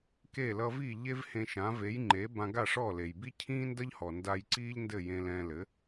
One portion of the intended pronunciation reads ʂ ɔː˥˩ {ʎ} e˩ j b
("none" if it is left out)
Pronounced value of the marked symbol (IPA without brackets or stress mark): l